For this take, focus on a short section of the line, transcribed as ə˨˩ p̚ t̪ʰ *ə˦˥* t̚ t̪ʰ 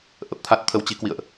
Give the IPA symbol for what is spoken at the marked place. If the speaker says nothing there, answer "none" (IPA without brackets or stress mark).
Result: a˦˥